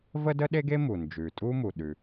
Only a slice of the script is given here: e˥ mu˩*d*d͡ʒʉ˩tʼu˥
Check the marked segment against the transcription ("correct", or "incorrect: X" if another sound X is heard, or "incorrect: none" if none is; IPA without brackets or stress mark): incorrect: n